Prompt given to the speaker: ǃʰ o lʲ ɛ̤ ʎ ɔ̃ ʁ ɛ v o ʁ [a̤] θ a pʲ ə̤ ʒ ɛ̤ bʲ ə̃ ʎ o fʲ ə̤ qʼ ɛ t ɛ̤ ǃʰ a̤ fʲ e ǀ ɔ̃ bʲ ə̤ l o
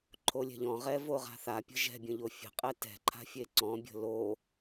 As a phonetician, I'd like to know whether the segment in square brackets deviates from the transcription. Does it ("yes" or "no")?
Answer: no